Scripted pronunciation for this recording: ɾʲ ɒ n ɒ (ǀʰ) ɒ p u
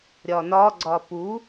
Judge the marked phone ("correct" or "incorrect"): incorrect